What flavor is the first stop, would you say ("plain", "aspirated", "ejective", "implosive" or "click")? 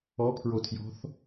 aspirated